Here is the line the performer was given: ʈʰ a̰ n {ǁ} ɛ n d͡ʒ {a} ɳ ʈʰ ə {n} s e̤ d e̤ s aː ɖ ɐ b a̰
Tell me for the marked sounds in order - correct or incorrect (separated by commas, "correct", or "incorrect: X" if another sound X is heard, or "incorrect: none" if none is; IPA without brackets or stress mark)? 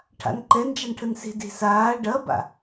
incorrect: ǃ, correct, correct